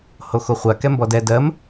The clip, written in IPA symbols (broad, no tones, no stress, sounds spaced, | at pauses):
h o x o χʷ a k ɛ m b ɔ d ɛ d ɜ m